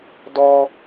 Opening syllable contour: high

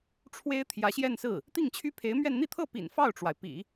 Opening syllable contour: high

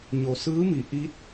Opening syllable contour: low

